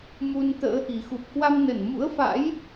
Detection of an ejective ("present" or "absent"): absent